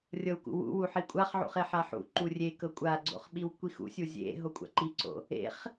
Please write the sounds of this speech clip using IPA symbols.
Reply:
rʲ ɤ w k ṵ w ṵ w u ħ i kʷʼ a χ ʕ ṵ χ e ħ a ħ ṵ ǃ u rʲ e k ɤ kʷʼ a ɡ͡ǀ o̰ χ ɓ i w kʷ i x ṵ sʲ u zʲ ḛ ɦ o kʷʼ a̰ ǃ i ǀ o̰ | ḛ χ

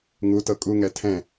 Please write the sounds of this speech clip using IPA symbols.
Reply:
ŋ u t ɤ kʼ u ŋ ɛ tʰ ɛ̃

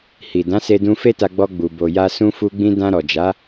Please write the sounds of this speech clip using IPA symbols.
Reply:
h i˨ d ã˨˦ s e˧ d ũ˧ f e˦ t a˧ ɡ͡b ɔ˦ ɡ͡b u˧ b o˨ j a˧ s ũ˦ f u˦ ɡ͡b ĩ˦ d ã˧ ɾ ɔ˨ d͡ʒ a˨˦

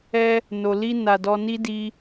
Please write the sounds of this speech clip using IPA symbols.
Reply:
ɛ˧ | n o˨ l i˧ n a˨ d ɔ˧ n i˦ d i˧

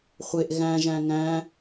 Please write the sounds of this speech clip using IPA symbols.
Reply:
χʷ e ʔ ɣ æ̃ ʒ æ̃ ŋ æ̃

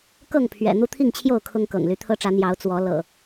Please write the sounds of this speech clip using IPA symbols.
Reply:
k ɤ˥˨ ŋ pʰ ɥ ɛ̰˨˩ n̪ u˦ t̪ʰ i˥˨ ŋ t͡ɕʰ j o˥˨ ʊ̯ kʰ ʊ˦ ŋ k ɤ̰˨˩ ŋ l y˨˦ t̪ʰ ɤ˦ ʈ͡ʂ ä˨˦ n̪ j ɑ˨˦ ʊ̯ t͡s w ɔ˨˦ l ɤ̰˨˩

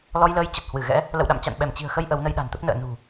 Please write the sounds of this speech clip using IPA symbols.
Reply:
l ɔ˧ j l əː˧ j t͡ɕ ə˨˩ t̚ h w ɨ˧˩ ɣ ɛ̰˧˥ | l ə̰˧˨ w ɗ a̰˧˨ m t͡ɕ a̰˧˨ n ɓ ɛ˧˩ m t͡ɕ i̤˨˩ ə̯ x ə˧ j ʔ ə˨˦ w n ə˧ j ɗ a̤˨˩ n t̪ ə˦˥ p̚ n ə̰ː˧˨ n ṳ˨˩

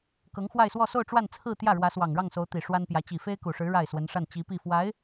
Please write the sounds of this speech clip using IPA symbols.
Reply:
k ɤ˧˥ ŋ x w a˥˧ ɪ̯ s w ɔ˥˧ s o˥˧ ʊ̯ ʈ͡ʂ w a˥˧ n t͡sʰ ɹ̩˥˧ t̪ j ä˥˩ ɻ w ä˧˥ s w ɑ˨˩ ŋ ɻ ɑ˥˩ ŋ s o˧˥ ʊ̯ t̪ i˨˩ ʂ w a˥ n p j ä˧˥ t͡ɕ i˨˩ f e˥ ɪ̯ k u˨˩ ʂ ɻ̩˧˥ ɻ a˥˩ ɪ̯ s w ə˧˥ n ʂ a˥˩ n t͡ɕ i˧˥ p i˥˩ f w a˧˥ ɪ̯

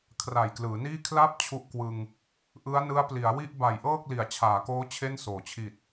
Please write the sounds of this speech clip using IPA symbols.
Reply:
kʰ r a˨˩ j k l ɯː˩˦ n iː˥˩ kʰ l a˦˥ p̚ t͡ɕʰ u˦˥ ʔ k w ɯ˧ ŋ | ʔ ɯ˦˥ a̯ n ɯ˦˥ a̯ p l i˩˦ a̯ w i˥˩ ʔ b a˨˩ j ʔ ɤː˥˩ k̚ l i˩˦ a̯ t͡ɕʰ aː˩˦ k oː˦˥ t͡ɕʰ e˥˩ n s oː˩˦ t͡ɕʰ i˨˩ t̚

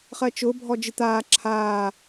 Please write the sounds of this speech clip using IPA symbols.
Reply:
χ ɜ t͡ʃ ʊː bʱ ɔ d͡ʒ ɨ t̪ aː ǁʰ aː

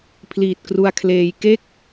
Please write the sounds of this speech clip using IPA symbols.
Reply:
pʰ l iː˨˩ t̚ k r u˧ a̯ kʰ l eː˧ j k e˥˩ k̚

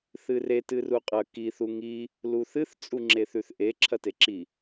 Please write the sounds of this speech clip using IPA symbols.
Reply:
θ ɨ r e t ɨ r u qʼ ɐ k i θ u ŋ i | l u θ ɨ θ t͡sʼ u ŋ͡ǁ e θ ʉ θ ʔ e ǁʰ ɐ t e ǁ i

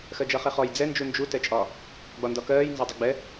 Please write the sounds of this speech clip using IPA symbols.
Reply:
x ɜ d͡ʒ ʌ χ ɛ χ ɔ j d͡z ɛ n d͡ʒ u n d͡ʒ u t ɛ t͡ʃʼ ɒ | ɡ͡b ɒ n d ɒ k ɜː j n z ɒ dˤ ʊ ɡ͡b ɛ

